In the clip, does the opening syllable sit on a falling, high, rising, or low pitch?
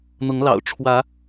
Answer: rising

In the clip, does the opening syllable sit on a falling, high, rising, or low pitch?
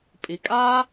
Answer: low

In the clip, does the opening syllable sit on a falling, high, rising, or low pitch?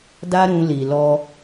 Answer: high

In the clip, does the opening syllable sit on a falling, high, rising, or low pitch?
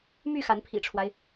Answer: falling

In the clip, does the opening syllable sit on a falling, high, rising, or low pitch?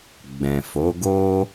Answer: low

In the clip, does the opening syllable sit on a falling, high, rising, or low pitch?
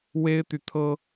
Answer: high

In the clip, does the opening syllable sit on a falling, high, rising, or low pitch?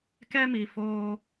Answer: high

